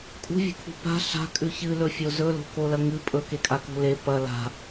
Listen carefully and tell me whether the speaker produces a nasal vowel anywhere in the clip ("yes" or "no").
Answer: no